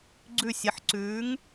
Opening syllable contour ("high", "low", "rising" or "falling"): falling